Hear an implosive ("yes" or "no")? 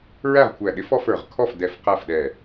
yes